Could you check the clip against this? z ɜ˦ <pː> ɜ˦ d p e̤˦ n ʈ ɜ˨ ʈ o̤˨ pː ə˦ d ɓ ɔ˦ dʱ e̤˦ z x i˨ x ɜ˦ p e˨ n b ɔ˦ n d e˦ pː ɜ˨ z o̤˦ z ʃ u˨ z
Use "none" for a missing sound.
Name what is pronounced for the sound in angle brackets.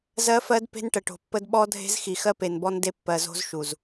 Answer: f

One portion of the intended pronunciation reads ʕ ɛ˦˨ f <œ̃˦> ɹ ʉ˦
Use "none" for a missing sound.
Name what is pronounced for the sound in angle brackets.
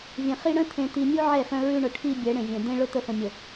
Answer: œ̃˦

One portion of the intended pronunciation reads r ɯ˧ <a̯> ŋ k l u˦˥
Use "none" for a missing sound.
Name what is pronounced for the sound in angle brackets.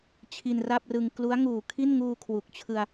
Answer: none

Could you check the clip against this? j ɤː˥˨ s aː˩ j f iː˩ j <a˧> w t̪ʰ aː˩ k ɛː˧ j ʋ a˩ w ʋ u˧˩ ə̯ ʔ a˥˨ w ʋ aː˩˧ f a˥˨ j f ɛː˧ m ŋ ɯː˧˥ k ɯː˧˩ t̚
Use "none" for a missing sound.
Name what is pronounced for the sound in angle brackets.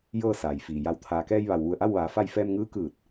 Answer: a˧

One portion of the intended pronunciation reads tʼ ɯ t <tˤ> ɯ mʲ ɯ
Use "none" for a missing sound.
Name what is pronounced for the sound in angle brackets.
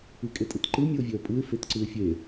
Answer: ǃ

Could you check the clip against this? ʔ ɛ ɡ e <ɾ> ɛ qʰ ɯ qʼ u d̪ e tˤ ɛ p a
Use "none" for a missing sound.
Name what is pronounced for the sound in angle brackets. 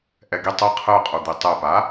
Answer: tˤ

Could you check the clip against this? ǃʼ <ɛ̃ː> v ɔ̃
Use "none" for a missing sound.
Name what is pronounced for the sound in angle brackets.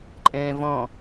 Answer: ɛ̃ː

